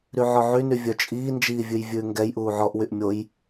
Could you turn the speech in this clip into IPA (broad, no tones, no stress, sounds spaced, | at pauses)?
ɾ y ʕ ɔ ʕ y n y vʲ œ t͡ʃʼ iː n d͡ʒ iː vʲ ʉ j vʲ ʉː ŋ ɡ ɛ j ʔ uː ʕ ɔ ʔ w y ʔ mʲ o j